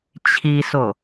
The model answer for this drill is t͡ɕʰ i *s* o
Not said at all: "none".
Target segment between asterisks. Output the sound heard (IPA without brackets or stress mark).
s